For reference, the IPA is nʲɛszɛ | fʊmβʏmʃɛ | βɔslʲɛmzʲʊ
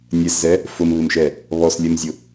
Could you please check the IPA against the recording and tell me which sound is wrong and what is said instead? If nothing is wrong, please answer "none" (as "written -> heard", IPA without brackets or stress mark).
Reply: ʏ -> ɪ